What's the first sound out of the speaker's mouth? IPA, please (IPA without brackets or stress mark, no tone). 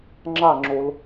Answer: ŋ͡ǁ